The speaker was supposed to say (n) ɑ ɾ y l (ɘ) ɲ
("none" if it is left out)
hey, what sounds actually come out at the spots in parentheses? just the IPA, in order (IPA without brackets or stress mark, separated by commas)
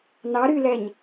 n, ɛ